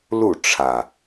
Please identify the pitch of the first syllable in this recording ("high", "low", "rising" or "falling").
falling